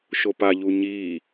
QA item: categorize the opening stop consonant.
plain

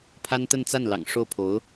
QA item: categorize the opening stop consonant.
aspirated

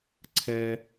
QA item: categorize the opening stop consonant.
click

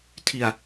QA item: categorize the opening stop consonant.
aspirated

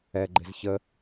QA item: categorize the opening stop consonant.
click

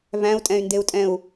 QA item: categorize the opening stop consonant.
ejective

